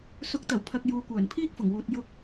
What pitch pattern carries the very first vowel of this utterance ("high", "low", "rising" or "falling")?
rising